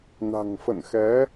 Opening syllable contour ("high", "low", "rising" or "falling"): low